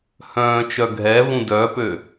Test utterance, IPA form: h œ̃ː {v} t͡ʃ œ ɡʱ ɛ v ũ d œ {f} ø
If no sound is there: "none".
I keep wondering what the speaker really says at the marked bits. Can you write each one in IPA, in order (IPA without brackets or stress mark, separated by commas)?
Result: none, p